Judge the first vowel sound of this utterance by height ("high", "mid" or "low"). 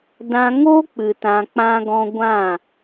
low